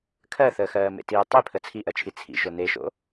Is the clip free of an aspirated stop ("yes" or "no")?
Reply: no